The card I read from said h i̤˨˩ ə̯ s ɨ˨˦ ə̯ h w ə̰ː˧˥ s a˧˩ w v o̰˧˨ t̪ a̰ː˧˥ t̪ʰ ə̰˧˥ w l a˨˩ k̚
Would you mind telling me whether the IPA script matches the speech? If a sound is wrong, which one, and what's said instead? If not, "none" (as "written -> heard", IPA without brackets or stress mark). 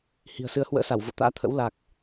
none